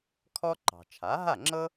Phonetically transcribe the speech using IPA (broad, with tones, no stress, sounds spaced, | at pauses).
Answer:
kʰ ɔ˥ ǃ ɑ̤˩ t͡ʃʰ a˩˥ ɦ a˥˩ ŋ͡ǁ ɤ˥